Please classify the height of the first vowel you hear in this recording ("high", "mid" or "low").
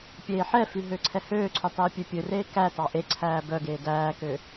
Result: mid